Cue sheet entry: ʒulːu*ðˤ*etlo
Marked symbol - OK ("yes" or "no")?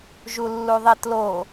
yes